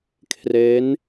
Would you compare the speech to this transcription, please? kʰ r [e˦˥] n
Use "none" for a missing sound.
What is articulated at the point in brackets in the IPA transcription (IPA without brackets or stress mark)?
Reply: e˦˥